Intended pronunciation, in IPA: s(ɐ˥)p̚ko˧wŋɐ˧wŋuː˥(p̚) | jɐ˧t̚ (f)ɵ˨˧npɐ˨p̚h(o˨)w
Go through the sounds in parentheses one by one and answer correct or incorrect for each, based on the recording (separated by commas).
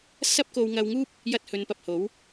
correct, correct, incorrect, incorrect